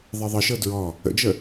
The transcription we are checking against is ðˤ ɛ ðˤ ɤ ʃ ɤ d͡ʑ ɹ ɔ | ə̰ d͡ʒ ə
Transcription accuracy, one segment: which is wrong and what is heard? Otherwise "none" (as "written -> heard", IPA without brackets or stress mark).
d͡ʑ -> d